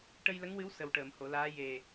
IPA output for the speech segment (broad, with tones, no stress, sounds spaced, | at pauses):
ʈ ə˧ j l ə˧˥ ŋ w ɨ˧˥ w s ə˨˩ w ʈ əː˨˩˨ m h o˨˩˨ l aː˧˥ j e˨˩